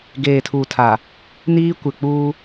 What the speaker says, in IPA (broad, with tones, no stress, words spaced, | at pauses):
ɡeː˨tʰu˨tʰa˨ | niː˦ kʷɪ˨k͡puː˦